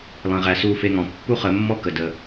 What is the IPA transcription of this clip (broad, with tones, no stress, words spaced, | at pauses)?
lˠẽ˨ʁæ˨ su˧fe˧ŋɔ̃˨ pːu˦χə˨˦mːɔ˦kə˨ də˧